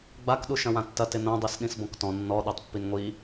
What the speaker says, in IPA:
ɡ͡bak ɗuʃɐ̃wãtːɐ tɪnõ dˤisɗĩsbɔ̃ktɔ̃ nːɔ ɗotˤpːinŋʷi

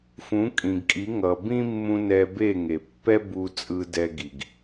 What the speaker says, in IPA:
fũ˨˦kʼĩ˨ɡkʼi˨˦ ŋʌ˨bĩ˦mːũ˧ nɛ˧be˦˨ŋe˨ pːɛ˦bu˧ t͡sʼɯ˧dɛ˧ɡi˨ɡ

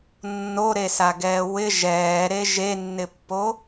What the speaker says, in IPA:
nːoɾesaɡɛː wɪ ʒɛːɾe ʒenːɪpːo

